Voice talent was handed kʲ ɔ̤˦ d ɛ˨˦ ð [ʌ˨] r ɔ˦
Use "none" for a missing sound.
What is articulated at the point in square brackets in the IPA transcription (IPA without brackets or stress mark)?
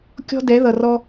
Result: ʌ˨